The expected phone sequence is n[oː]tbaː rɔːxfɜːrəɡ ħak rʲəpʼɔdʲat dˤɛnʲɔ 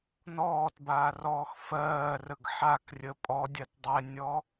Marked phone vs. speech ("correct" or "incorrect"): incorrect